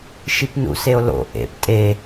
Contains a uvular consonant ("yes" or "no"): no